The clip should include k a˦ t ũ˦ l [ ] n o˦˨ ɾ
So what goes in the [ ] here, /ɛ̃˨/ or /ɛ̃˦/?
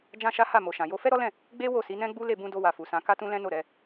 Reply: ɛ̃˦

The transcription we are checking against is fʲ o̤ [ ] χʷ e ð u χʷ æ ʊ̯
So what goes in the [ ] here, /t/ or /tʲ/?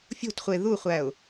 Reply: t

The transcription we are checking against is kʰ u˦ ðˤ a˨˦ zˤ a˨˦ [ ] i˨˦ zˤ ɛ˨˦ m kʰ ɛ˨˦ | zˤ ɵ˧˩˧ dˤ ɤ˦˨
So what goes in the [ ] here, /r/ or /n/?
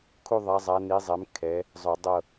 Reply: n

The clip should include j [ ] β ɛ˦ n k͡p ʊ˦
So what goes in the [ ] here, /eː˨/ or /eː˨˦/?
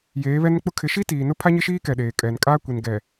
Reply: eː˨˦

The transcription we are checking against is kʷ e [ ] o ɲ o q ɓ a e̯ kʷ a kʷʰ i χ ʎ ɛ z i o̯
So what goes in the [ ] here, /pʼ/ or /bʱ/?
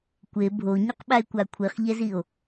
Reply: bʱ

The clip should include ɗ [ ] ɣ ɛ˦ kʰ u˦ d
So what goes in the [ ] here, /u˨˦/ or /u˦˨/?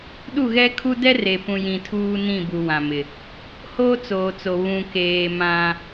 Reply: u˦˨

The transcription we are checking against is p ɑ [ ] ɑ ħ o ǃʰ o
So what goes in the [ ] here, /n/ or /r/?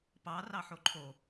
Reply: r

